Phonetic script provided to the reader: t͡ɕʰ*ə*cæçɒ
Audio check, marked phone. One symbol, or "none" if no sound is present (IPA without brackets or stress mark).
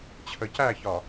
ə